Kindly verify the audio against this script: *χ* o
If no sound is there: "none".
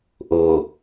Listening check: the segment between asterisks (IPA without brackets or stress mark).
ʔ